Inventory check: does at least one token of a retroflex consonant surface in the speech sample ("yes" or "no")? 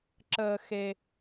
no